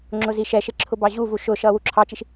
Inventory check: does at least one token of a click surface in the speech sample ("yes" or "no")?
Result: yes